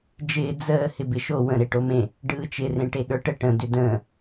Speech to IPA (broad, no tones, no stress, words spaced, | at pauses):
d͡ʒɪː d͡zəː hɪbɪʃo wə̃ ɾeʈomẽ | ɖɯːt͡ʃɪ rẽʈeɠə˞ʈə ʈə̃ dʏdə̃ː